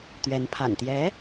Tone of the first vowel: rising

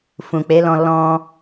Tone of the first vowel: low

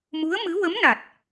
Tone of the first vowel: rising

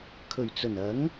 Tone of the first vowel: low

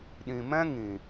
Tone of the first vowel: low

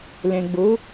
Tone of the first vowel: low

